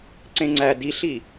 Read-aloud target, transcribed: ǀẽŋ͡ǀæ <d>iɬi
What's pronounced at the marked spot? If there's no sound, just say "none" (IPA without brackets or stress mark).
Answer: d